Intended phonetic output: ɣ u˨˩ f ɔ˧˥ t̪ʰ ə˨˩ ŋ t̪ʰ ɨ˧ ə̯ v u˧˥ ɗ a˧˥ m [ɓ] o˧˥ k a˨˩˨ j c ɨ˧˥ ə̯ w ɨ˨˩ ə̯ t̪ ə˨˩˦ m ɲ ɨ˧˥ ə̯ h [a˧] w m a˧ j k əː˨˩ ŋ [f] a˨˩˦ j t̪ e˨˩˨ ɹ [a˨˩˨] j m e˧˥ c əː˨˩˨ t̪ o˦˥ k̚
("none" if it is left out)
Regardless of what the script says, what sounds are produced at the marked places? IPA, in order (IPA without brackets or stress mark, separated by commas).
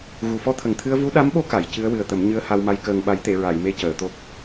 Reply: ɓ, a˧, ɓ, a˨˩˨